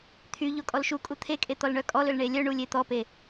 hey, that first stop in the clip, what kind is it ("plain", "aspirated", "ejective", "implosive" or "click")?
aspirated